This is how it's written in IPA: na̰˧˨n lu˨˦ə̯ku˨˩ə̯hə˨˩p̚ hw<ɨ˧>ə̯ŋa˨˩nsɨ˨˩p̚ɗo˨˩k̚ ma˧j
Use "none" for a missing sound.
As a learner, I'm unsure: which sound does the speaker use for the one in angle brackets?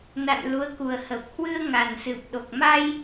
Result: ɨ˧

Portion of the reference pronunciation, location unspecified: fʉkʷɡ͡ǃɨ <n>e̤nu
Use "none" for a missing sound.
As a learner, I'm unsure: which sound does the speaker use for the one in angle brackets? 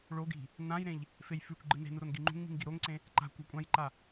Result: n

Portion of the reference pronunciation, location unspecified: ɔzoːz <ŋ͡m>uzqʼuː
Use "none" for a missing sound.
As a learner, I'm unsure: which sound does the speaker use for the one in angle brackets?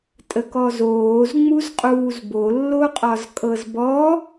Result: ŋ͡m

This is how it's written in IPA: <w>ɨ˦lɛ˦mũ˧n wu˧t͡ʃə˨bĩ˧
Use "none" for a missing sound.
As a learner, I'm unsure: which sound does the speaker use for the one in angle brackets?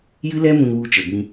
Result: j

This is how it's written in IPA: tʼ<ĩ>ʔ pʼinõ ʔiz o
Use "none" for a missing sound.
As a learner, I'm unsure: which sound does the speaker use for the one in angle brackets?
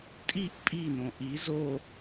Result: i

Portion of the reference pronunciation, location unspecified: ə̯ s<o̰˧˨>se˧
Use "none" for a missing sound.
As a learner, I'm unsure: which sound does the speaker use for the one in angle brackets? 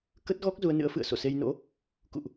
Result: o̰˧˨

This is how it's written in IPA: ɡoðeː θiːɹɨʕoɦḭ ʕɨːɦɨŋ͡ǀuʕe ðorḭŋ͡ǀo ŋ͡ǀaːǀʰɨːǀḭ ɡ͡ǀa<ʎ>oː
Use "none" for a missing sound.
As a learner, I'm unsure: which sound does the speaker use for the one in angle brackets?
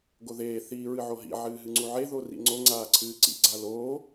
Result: l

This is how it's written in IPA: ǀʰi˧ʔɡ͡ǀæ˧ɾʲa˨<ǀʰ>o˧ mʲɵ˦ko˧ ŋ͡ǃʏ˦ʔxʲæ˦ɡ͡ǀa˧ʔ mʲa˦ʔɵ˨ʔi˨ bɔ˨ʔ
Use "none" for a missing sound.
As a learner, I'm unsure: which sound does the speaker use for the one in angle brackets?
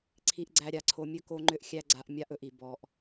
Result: ǀʰ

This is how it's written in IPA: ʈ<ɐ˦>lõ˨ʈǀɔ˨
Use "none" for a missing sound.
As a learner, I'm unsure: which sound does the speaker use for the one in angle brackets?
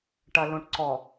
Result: ɐ˨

